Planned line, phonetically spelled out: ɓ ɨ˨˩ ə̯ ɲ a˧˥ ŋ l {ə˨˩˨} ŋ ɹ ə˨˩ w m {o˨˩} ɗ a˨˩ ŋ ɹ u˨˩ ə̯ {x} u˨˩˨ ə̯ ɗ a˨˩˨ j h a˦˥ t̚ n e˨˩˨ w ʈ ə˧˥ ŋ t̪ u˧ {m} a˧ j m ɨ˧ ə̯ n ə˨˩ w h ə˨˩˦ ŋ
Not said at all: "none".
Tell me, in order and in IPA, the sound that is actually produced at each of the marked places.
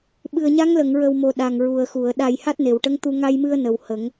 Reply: ə˨˩˨, o˨˩, x, ŋ

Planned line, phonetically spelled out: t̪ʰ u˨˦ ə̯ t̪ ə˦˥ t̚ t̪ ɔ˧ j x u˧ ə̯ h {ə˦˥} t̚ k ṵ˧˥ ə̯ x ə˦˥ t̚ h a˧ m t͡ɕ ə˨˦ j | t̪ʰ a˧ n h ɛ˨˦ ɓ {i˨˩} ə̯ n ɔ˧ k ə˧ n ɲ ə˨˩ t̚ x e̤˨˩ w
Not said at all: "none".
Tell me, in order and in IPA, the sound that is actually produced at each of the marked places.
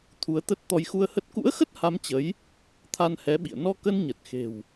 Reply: ə˦˥, ḭ˧˨

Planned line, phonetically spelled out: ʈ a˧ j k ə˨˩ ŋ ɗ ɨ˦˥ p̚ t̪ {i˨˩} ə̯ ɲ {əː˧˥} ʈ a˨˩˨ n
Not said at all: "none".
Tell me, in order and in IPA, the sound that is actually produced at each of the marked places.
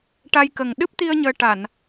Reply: i˧, əː˧

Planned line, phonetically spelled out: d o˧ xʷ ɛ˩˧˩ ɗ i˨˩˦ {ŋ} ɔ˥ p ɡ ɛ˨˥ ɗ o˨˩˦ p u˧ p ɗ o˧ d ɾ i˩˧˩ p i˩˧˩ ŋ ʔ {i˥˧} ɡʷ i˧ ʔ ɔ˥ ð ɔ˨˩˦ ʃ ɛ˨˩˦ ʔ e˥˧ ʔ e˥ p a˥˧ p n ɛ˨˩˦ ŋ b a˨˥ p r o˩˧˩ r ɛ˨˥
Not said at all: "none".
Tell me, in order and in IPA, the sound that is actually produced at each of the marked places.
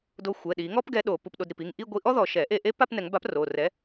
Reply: ŋ, i˥˧

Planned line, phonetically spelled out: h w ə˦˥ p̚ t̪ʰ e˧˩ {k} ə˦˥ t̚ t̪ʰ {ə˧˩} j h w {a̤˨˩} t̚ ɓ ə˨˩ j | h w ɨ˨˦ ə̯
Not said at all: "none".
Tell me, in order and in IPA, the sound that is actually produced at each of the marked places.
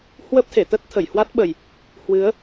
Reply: t̪, ə˧˩, a˦˥

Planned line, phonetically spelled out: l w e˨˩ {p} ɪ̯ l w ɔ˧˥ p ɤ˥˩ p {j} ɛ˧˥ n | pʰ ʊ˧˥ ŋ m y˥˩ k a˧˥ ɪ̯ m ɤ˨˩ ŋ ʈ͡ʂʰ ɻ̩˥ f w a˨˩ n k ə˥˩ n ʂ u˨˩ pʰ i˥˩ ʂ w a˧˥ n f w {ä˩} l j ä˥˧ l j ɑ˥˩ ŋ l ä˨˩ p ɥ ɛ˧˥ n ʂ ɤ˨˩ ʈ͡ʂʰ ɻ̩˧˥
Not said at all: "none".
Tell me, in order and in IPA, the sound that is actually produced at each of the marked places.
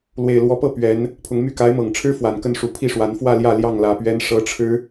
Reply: none, ɥ, ä˥˧

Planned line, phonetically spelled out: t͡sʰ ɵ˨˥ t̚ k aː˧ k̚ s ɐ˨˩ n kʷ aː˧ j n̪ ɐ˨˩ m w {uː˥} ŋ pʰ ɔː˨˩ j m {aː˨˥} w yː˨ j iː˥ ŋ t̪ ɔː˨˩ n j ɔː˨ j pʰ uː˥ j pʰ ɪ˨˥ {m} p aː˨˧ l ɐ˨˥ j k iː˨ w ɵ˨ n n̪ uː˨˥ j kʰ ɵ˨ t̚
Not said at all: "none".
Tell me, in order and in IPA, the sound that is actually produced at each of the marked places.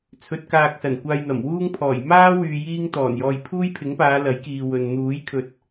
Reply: uː˥, aː˥, ŋ

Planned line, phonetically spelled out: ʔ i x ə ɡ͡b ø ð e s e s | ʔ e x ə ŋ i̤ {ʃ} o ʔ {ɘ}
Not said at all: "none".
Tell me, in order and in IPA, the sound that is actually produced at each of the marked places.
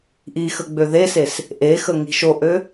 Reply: ʃ, ø

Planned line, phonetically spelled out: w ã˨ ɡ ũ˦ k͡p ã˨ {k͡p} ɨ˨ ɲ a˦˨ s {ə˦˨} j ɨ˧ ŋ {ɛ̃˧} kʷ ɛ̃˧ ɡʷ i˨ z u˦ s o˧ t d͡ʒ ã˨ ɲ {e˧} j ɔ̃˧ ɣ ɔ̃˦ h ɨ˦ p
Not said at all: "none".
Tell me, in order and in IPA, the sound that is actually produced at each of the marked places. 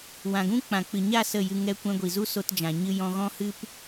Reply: k͡p, ə˦˨, ɛ˧, ɨ˧

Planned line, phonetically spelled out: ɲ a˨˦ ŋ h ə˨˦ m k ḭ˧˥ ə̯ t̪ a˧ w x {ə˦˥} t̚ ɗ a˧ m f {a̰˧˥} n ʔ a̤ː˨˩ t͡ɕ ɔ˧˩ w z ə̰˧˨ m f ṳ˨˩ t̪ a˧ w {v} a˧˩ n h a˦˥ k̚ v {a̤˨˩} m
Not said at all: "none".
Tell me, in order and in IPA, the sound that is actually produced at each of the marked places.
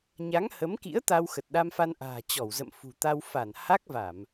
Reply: ə˨˩, a˧, f, a˧˩˨

